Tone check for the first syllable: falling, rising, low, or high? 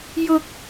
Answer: high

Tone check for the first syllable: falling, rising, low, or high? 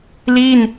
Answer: falling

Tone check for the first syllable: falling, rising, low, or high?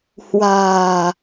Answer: low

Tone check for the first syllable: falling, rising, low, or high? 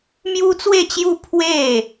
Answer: high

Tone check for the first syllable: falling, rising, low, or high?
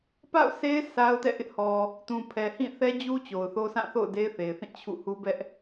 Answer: falling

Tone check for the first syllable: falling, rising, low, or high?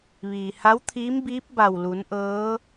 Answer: low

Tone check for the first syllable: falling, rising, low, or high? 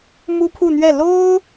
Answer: high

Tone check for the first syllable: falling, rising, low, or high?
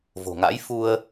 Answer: low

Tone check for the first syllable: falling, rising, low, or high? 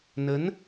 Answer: rising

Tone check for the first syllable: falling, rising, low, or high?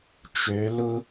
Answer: rising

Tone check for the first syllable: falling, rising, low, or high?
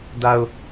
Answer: low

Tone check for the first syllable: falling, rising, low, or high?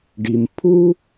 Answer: low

